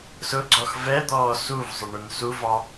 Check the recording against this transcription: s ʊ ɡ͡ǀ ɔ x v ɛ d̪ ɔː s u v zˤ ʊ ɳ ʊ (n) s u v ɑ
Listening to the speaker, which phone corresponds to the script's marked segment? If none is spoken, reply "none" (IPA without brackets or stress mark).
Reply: n